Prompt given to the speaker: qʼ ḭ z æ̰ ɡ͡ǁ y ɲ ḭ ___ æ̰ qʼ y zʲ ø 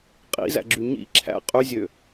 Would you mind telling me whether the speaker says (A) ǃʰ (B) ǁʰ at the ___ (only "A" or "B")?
B